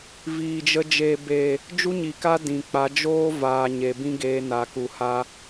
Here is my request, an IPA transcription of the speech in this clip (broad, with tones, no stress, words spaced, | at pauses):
viː˨d͡ʒə˧ d͡ʒeː˨beː˨ | d͡ʒu˦ɲi˨ka˦ dĩ˨k͡pa˨˦ d͡ʒoː˦vaː˨ ɲe˨bĩ˦ɡeː˧na˨ ku˨ha˧